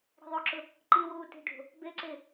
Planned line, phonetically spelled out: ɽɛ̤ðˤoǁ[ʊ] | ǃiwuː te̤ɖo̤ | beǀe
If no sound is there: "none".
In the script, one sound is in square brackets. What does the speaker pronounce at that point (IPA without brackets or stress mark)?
ʊ